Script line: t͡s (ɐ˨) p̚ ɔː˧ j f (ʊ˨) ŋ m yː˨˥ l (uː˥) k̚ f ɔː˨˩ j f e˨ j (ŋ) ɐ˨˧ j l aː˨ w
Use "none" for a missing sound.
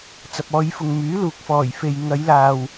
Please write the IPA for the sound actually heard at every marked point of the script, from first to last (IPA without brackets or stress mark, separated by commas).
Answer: ɐ˨, ʊ˨, uː˨, ŋ